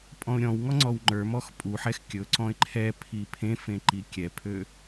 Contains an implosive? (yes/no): no